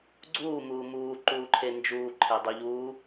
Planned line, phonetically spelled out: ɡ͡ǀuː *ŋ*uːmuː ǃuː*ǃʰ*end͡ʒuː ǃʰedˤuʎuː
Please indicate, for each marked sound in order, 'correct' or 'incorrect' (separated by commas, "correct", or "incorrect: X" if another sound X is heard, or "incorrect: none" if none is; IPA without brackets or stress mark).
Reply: incorrect: m, correct